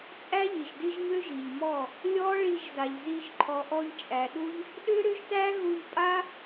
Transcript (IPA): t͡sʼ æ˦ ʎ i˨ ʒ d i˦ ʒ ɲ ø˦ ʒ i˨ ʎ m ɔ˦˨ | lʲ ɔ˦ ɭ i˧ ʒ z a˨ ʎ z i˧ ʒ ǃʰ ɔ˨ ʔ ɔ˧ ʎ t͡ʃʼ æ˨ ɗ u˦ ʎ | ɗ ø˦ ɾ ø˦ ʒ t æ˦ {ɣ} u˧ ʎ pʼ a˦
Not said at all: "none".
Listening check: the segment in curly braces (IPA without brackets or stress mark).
ɣ